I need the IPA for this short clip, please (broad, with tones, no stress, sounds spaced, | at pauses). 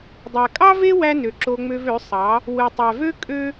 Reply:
dˤ æ˨ kʼ ɑ˦ v e˦ w æ˧ n ø˨ ǁ o˧ ŋ͡m ø˧ v ø˨˦ sˤ ɑ˨˦ | w ɯ˨ tˤ æ˨ v ø˦ kʼ ø˦